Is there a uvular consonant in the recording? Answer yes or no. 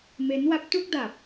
no